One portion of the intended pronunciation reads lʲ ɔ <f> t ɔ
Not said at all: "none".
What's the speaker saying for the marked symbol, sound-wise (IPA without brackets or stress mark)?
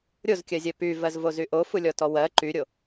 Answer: none